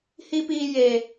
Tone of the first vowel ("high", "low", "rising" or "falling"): high